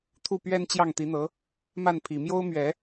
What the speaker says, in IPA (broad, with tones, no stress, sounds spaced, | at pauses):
t̪ʰ u˥˩ p ɥ ɛ˥ n t͡ɕ j ɑ˥˩ ŋ t̪ i˧˥ n̪ ɤ˧˥ | m a˥˩ n pʰ i˨˩ m j o˥ ʊ̯ m ɥ ɛ˨˩˦